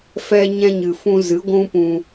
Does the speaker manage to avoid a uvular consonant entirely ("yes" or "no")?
yes